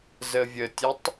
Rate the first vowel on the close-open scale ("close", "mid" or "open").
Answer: mid